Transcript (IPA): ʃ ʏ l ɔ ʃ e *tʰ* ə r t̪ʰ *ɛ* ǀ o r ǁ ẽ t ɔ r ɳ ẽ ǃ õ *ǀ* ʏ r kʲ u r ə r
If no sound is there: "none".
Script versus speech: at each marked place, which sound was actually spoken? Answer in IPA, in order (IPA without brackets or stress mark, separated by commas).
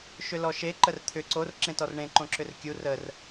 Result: ǃ, ʏ, ǁ